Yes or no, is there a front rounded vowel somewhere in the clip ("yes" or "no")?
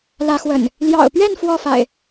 no